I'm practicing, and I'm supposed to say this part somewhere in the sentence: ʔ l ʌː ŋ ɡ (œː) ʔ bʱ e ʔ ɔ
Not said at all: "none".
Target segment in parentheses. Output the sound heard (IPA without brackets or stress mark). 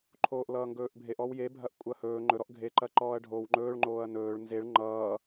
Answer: ɵː